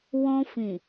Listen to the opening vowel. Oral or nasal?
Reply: nasal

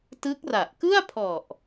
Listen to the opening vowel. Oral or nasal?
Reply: oral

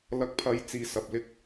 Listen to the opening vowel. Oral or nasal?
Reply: oral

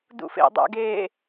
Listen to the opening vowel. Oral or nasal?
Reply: oral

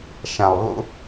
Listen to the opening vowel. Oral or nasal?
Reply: nasal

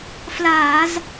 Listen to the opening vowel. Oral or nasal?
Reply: oral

